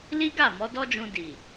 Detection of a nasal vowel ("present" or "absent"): present